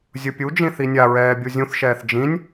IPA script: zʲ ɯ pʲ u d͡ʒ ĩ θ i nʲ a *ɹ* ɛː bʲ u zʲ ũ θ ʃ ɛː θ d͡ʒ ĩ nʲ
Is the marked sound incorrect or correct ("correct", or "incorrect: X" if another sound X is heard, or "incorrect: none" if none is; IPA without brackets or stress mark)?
correct